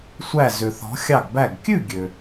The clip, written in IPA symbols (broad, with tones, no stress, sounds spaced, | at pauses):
sʷ æ˧˩ z ø˩ θ ɔ̤˩˧ xʲ ɑ˧˩ ɡ b æ˧˩ ɡ kʲ ʉ˥˨ ɡʲ ø˩